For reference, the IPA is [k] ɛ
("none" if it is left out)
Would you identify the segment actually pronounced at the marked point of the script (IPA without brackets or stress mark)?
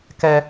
k